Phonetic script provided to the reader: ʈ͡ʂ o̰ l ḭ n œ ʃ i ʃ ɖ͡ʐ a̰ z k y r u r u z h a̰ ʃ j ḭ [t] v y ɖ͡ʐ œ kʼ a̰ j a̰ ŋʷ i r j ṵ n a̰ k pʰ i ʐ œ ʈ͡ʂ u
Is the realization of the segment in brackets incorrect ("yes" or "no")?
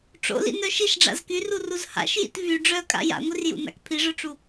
no